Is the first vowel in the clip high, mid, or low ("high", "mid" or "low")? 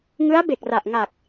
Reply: high